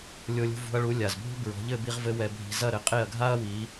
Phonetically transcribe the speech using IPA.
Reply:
lʲo˧lʲṳ˧vṳ˧ɐ̯ɭu˩˥ lʲa˩zbʱṳ˥ bɹɔ̤˩˥ ʎɘ˥˩bi˧ʁvɘ˧ wɛ˧bʱi̤˧ zɐ˥˩ɾɘ˩˥ qʼe˥˩ɐ̯ɡʱa˥ɐ̯ wi˩˥

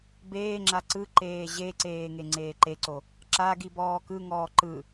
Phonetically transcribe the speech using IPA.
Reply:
beːŋ͡ǁa ǀɯǃeː ʑeǀeː ŋeŋ͡ǀeːǃeǀo | ǁa ɡibɔːkɯŋɔː ǃɯ

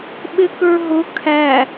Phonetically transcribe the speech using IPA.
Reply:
ɓɪkə˞ɦʊ kʰæ

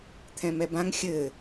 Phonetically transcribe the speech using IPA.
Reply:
t̪ʰɛ̃mɛbãŋ xʲɘ

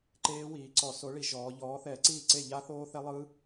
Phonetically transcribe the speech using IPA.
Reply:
ǃeː˦˥wiː˩˧ǀɔ˧˩˧ so˨˥ɭi˧˩˧ʒɔː˩˧ʎɔː˨˥ θɛː˧˩˧ǀiː˥˩ǀe˥˩ ʎa˦˥θoː˦˥θɛ˦˥ lˠɯ˦˥

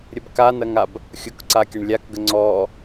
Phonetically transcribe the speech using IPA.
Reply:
ɾʲəbkanɐŋab | xʲukǀakʲɐɳ lʲakɡə ŋ͡ǀɔ

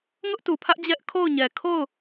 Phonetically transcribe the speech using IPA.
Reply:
ŋʊ˦ʔtu˨pʰä˦ʔ d͡ʑɛ˦ʔkʰo˦˨ʊ̯ɲɛ˨ kʰo˦˨ʊ̯

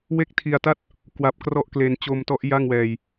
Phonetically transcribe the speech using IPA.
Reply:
we˥˩k̚tʰi˧a̯ta˥˩t̚ | kwa˦˥p̚krɔ˥˩ʔkle˧n t͡ɕo˧mtɔ˦˥ʔ ja˥˩ŋwɛː˧j

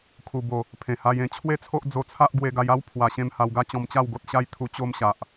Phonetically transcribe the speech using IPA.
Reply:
kʰu˨˩bo˨˩ | pʰẽ˨˩ha˧jẽ˨˩ t͡ɕʰwe˥˧t͡sʰo˦ʔd͡zo˧t͡sʰa˦ʔ ɡwe˧ɡa˧ja˦w pʰwa˧ɕẽ˦m ha˧wɡa˦t͡ɕɔ̃˧mt͡ɕa˥˧w ɡo˦t̚ɕa˦jt̪ʰu˧ t͡ɕo˦mɕa˨ʔ

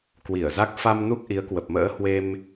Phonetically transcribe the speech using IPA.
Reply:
kwi˧˩ə̯za˦˥k̚ fa˧m nu˦˥k̚ʔi˨˦ə̯kwə˨˩p̚mə̰ː˧˥ hwe˧m

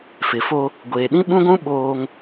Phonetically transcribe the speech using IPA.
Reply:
fɪ˨fo˦ | ɡʷeː˨ ɗĩ˦ɓũ˦ɡʷũ˦ ɓoː˦ŋ

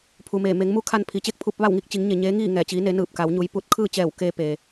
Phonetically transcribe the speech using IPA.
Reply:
pʰu˩ meː˧˩ me˩˧ŋ mu˧˥ kʰa˧npʰi˩˧t͡ɕe˥˨k̚ pʰu˧p̚ʋa˥˨w ŋi˥˨k̚t͡ɕi˩˧ŋɲe˩ ɲeː˧˥ŋiː˥˨ŋɛː˧˩ t͡ɕiː˧˥ne˧˥ nɯː˧˩p̚ka˩˧wɲu˩˧j pu˧˥t̚ kʰɯː˥˨t͡ɕɛː˧˩w keː˧ peː˩

